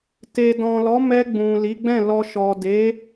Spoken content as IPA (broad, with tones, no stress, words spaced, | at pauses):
te˨dɔ̃˨lɔ˨˦ mɛ˧ɡ͡bũ˨ li˨˦ɡ͡bɛ̃˦˨lɔ˧ ʃɔ˨de˨˦